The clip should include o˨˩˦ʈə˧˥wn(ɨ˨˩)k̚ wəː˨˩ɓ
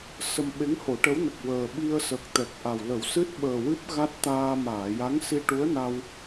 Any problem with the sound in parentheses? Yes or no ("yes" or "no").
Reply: yes